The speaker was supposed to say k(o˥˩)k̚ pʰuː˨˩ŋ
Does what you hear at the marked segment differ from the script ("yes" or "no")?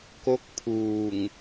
yes